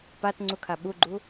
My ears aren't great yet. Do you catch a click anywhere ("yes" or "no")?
yes